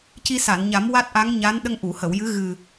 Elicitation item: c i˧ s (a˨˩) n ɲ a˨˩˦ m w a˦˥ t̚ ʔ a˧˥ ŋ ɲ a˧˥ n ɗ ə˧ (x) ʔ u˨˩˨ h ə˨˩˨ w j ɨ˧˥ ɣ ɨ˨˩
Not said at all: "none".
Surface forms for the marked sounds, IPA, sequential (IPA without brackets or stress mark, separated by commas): a˨˩˨, ŋ